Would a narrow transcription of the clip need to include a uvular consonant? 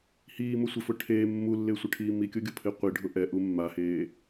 yes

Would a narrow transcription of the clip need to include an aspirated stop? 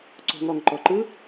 no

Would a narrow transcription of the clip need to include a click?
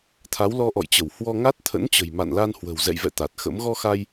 no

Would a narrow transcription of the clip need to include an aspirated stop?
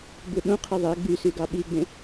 yes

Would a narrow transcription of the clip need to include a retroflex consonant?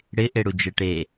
yes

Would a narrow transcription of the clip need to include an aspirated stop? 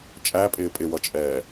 no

